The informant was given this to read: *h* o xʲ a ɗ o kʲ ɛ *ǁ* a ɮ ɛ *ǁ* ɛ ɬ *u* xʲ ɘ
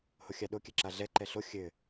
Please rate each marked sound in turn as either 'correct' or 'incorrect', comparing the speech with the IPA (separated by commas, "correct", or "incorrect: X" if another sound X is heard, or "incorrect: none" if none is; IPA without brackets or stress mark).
correct, correct, incorrect: ǃ, incorrect: o